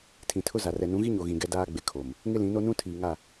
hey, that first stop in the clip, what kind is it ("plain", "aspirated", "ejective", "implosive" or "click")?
aspirated